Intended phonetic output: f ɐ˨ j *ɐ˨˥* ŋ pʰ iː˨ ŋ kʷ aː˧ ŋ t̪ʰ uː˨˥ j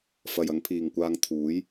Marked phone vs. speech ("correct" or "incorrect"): correct